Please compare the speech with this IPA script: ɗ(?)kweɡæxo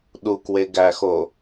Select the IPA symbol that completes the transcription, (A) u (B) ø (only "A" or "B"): A